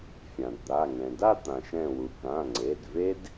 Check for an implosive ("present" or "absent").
absent